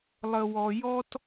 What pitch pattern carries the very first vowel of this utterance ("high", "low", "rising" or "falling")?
low